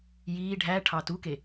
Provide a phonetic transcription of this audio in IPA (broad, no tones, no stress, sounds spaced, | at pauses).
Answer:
j iː ɖʱ æ ʈʰ ɑ t u k e